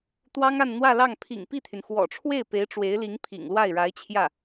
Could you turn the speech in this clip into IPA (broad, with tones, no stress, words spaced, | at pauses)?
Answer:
t̪wɑ˥ŋa˥˧nn̪wä˥˧lɑ˥˩ŋ pʰḭ˨˩ŋpi˥˩t̪ʰy˩n xwɔ̰˨˩ʈ͡ʂʰwe˥˩ɪ̯pe˧˥ɪ̯ ʈ͡ʂwe˧˥ɪ̯li˧˥ŋ pʰḭ˨˩ŋlwa˥˩ɪ̯ ɻa˧˥ɪ̯t͡ɕʰjä˥˩